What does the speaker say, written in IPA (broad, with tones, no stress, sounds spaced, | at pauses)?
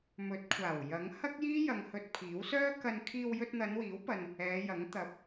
m ɵ˨˥ t̚ kʷʰ aː˨˩ w j ɐ˨˥ ŋ h ɐ˥ k̚ j iː˥ j ɐ˧ ŋ h ɵ˧ t̚ pʰ iː˨˥ w s œː˥ k ɐ˧ n kʰ iː˧ w j ɵ˧ t̚ n̪ ɐ˨˧ n w iː˨˥ w p ɐ˨ n | ɛː˨˧ j ɐ˨˥ ŋ t̪ ɐ˨ p̚